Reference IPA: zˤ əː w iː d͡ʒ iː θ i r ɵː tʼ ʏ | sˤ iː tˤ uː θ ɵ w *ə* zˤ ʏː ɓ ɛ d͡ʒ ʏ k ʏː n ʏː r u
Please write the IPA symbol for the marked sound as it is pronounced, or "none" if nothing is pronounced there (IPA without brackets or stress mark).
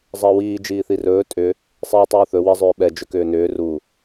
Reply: ə